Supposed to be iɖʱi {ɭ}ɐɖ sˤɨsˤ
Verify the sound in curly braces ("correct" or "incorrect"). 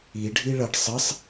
correct